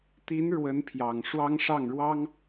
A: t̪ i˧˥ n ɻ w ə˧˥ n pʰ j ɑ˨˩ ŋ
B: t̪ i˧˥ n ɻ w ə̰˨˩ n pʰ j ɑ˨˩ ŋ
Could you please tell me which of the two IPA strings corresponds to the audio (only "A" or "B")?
A